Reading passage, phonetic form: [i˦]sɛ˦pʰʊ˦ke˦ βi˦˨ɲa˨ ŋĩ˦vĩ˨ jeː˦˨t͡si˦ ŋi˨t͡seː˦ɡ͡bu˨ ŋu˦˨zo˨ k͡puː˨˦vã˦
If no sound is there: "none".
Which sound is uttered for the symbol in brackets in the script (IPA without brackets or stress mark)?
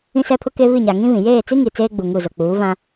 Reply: ĩ˦